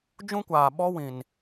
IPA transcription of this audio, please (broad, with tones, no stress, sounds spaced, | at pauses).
d͡ʒ ũ˦ kʷ aː˨ ɓ ɔ˦ w ĩ˨ n